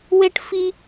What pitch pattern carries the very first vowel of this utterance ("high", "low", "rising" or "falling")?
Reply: high